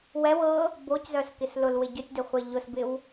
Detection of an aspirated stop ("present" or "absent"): absent